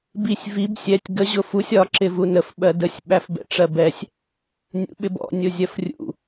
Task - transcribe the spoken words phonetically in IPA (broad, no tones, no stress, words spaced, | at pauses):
bisʲ vib sʲɛtʲ ɡə ʑʊfusʲ ɒ ǁɪvunəf ɓɜdəsʲ ɓæfbɛ̰ʈ͡ʂɜbɛsʲ | nʲṵɓɪbɔ̰ nʲʊzʲɜfrʲṵ